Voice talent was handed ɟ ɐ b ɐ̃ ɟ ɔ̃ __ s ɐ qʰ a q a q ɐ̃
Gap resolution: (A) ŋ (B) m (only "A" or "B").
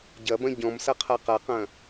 B